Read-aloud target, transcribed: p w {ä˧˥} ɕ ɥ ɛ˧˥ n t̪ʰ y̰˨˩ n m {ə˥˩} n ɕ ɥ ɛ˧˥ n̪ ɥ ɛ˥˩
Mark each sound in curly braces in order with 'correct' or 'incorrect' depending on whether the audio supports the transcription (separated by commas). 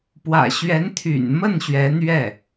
incorrect, correct